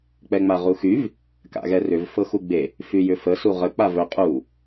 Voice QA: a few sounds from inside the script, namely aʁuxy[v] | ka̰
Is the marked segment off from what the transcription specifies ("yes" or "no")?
no